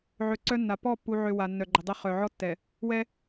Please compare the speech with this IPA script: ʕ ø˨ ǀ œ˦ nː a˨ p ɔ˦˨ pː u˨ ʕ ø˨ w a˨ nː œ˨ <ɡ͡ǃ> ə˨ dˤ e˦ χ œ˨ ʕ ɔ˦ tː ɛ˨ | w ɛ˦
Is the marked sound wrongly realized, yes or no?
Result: no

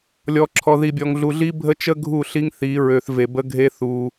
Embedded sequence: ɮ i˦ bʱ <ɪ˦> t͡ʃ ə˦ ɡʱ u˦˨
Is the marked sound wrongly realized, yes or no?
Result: yes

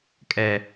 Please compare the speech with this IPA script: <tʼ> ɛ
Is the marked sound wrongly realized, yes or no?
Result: yes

